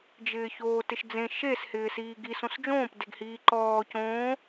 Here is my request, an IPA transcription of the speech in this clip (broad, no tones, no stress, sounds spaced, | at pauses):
d͡ʒ ɪː ç oː t ɪ ʃ d͡z ẽ ʃ e s h ɪː s iː ɡ i s õ s d͡ʒ õː p d e ɡ h iː ǃ ɔː c õː